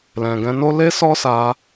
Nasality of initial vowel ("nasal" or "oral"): nasal